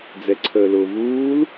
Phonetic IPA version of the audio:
d͡zɛǀʰəːlʊːvuːl

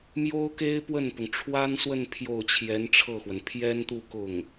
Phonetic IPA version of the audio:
mjo˥ʊ̯ke˥ɪ̯ pwə˥˩npʊ˩ŋ ʈ͡ʂʰwa˥nswə˥˧n pʰjo˥˩ʊ̯t͡ɕʰjɛ˧˥nʈ͡ʂʰɤ˥˩xwə˩n pʰjɛ˥nt̪u˥˧ kʊ˥˩ŋ

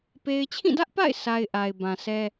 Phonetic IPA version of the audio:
pe˦ɪ̯ t͡ɕʰĩ˦˨dä˦ʔpa̰˦˨ɪ̯ sʰa˦ɪ̯ʔa˨ɪ̯bã˨sʰɛ˦

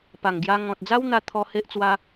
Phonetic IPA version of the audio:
pa˨˩ŋɡja˧ ŋɔ̃˨t̚d͡za˦wn̪a˧t̪ʰɔ˧ he˦ʔt͡swa˦

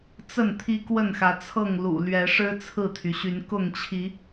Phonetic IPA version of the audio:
t͡sə˥˨n t̪ʰi˦kwə˥˨nxä˨˦t͡sʰɤ˥˨ŋ lṵ˨˩lɥɛ˨˦ʂɻ̩˦ t͡sʰɹ̩˥˨t̪ʰy˩ɕy˨˦n kʊ˥˨ŋt͡ɕʰi˨˦

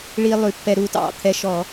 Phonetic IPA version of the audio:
ɭi˧ lˠʉ˧˩˧pːɛ˧ɾu˧ tɑ̰˧˩˧ t̪ʰɛ˧ʃɔ˧˩˧

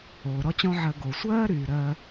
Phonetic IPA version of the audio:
oː˨ɾɔ˦ t͡ɕɔ̃˦ʕɜ˧ ɡo˨sʷɜː˦ɾyː˨ ɾɜ˧

